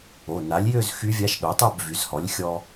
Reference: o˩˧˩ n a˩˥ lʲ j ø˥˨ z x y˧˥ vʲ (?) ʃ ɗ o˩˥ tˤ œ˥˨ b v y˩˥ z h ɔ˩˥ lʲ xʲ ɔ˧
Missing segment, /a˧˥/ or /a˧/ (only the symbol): a˧˥